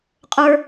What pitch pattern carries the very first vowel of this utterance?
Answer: high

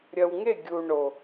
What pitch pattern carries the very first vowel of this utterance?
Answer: low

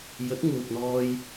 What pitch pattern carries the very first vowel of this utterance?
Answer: rising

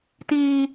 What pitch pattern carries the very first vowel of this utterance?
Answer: high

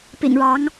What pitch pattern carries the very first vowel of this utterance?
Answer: low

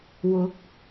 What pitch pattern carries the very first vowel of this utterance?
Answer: rising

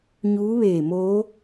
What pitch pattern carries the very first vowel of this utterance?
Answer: rising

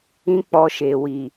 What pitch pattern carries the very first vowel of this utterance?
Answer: high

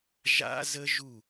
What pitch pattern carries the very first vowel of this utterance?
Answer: high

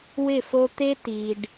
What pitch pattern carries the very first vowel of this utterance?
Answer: falling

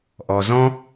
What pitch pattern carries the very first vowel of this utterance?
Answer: low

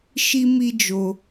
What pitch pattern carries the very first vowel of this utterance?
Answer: high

